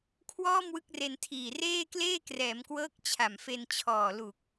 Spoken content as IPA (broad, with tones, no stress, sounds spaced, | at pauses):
kʰ w ɔː˥˩ m w ɯ˦˥ k̚ r e˧ n tʰ iː˨˩ r eː˥˩ k l eː˥˩ k r ɛː˩˦ m k w ɤː˦˥ k̚ t͡ɕʰ a˨˩ m f e˧ n t͡ɕʰ ɔː˨˩ l u˨˩ k̚